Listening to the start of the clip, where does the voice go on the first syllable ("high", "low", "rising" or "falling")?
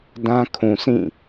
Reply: high